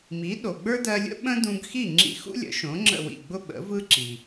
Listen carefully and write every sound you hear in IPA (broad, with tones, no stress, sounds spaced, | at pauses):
m i˩˥ ɗ o˩ ɡ͡b ə˞˥ d ɜ˧ lʲ ə̰˥ ɓ ə̃˥ d ũ˧ ɡ x i˥˩ ŋ͡ǁ ḭ˧ x ṵ˥ lʲ ə̰˩˥ ʃ õ˩˥ ŋ͡ǁ ə̰˥˩ w ḭ˥˩ ɡ͡b ʊ˥ ɓ ə̰˩˥ v ɯ˥ ǁ i˩